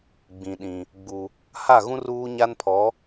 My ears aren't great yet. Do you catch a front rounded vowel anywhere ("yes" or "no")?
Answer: no